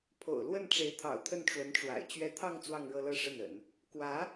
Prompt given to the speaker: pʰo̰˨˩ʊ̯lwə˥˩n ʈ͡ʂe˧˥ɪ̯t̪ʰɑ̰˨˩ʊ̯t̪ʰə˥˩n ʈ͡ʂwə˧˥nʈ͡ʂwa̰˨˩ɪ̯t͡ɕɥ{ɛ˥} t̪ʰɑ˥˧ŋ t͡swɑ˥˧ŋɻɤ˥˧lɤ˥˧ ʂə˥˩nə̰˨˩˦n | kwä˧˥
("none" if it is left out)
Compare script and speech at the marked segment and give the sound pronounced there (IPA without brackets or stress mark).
ɛ˥˧